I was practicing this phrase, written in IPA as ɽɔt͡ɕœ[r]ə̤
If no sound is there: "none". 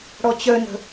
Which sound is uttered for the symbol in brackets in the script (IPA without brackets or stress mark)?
n